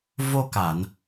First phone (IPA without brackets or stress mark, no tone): v